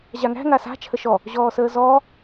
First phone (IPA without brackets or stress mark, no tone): ʑ